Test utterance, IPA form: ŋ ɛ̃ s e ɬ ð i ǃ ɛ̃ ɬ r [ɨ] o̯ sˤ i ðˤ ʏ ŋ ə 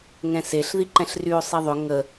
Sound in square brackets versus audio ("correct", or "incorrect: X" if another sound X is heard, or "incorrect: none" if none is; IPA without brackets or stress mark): incorrect: y